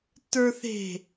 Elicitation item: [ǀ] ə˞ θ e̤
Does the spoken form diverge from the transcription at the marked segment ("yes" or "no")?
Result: yes